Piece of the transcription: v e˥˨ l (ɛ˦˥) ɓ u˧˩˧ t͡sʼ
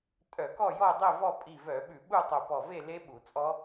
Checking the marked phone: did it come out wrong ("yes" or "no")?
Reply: yes